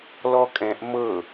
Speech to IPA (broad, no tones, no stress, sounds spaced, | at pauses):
l ɔ kʼ ɛ̃ ʔ m ɤ